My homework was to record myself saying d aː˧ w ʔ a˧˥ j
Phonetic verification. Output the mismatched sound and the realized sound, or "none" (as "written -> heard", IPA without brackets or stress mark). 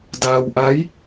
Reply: none